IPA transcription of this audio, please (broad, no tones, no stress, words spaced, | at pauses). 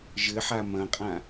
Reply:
ʒɘħa mɐ̃qʼã